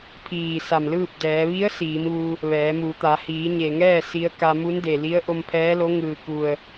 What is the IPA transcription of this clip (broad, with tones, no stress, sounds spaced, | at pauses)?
pʰ iː˧˩ s a˧˩ m l ɯː˥˨ p̚ d ɛː˩˧ ʋ i˧˥ ə̯ s iː˩˧ m ʋ u˧ | ʋ ɛː˩˧ m u˩˧ t̪ a˩˧ h iː˩˧ ɲ e˩ ŋ ɛː˥˨ s i˧˥ ə̯ k a˧ m u˧˥ n d e˩ l i˧˥ ə̯ ʔ o˧ m pʰ ɛː˧˥ l o˧˥ ŋ ɯː˩ k u˩ ə̯